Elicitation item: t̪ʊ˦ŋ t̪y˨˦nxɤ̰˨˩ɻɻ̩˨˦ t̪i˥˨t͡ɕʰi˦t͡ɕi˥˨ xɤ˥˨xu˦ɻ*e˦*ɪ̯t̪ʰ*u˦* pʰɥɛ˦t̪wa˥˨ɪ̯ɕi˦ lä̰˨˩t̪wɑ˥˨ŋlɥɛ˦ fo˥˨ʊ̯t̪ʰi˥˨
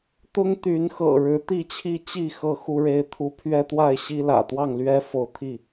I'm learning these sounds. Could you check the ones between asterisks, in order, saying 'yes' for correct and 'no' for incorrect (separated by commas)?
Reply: yes, yes